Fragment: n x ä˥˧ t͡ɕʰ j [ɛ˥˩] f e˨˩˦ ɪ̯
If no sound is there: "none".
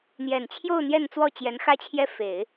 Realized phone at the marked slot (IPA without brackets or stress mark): ɛ˥˩